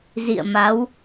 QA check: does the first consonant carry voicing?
yes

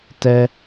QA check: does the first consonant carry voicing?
no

